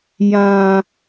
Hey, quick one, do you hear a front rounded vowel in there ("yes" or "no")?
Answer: no